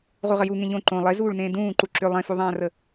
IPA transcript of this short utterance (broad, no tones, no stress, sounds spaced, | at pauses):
ʁ u ʁ ə j u ŋ ẽ ʎ õ ǃ õ lˠ e z uː ɭ n ẽː d ũː ǃ u ǁ ʏ lˠ ẽ f u ðˤ ãː r ə